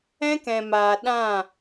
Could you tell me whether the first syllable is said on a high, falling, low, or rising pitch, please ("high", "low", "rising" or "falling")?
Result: high